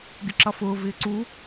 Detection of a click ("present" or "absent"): present